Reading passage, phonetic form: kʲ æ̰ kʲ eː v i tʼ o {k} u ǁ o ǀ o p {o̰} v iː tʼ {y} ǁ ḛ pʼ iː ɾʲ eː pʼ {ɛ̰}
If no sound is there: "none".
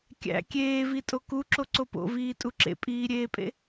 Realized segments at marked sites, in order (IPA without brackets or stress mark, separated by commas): k, o̰, u, ḛ